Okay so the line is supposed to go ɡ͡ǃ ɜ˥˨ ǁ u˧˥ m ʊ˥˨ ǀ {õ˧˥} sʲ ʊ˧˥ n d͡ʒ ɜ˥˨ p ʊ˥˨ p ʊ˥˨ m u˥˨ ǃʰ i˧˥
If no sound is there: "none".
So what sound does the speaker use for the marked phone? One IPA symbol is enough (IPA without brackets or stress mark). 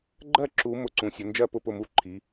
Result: ũ˧˥